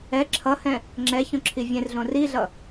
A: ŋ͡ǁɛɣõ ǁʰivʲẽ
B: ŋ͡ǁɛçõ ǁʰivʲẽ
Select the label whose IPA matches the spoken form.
B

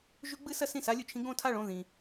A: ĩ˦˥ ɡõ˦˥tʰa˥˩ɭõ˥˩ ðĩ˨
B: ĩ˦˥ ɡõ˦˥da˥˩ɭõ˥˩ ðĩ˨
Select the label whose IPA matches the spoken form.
A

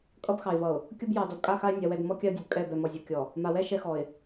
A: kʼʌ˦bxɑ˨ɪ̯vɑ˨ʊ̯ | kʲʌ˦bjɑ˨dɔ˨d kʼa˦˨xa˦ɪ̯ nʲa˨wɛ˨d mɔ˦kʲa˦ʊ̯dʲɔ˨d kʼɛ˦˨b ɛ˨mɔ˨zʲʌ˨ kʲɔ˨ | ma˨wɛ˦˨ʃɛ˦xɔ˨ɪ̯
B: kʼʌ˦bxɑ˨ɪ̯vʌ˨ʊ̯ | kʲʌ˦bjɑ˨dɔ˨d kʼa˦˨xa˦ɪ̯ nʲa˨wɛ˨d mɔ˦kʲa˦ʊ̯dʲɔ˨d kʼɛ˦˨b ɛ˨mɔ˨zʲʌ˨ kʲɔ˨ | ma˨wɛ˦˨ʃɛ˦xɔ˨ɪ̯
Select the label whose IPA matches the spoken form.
B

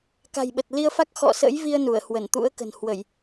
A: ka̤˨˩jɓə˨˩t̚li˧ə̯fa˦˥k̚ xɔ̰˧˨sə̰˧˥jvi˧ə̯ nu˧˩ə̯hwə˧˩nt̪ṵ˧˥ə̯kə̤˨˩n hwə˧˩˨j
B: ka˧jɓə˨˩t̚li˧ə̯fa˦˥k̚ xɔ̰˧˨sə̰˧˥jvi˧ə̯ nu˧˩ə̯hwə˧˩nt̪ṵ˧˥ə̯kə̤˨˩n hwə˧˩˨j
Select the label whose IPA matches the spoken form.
A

